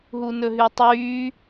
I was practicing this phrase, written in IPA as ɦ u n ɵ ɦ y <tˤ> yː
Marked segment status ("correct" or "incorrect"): correct